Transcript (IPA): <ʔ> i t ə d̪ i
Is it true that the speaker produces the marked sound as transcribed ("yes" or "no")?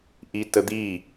yes